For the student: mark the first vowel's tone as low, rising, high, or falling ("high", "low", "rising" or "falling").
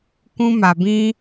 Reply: high